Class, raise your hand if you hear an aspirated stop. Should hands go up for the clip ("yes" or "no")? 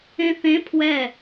yes